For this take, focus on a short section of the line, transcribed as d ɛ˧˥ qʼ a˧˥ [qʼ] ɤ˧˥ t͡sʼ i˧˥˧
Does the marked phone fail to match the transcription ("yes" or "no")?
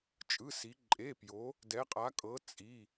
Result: yes